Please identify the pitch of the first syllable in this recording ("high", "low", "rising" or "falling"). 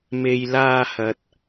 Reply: low